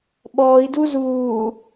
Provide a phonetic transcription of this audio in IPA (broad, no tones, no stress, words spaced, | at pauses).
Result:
ɓɔːi̯du zuː